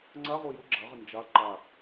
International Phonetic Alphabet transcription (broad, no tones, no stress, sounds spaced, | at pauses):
ŋ͡ǀ a ʁ o j ʊ ɡ͡ǁ a ʁ ɪ n d͡ʒ a ǃ a